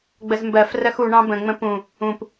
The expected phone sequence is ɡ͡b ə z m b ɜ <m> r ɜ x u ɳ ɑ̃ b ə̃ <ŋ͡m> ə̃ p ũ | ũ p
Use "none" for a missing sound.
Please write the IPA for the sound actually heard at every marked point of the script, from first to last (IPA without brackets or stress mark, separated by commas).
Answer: f, ŋ͡m